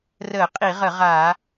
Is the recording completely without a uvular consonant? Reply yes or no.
no